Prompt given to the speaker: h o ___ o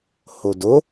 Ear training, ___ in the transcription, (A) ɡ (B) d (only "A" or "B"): B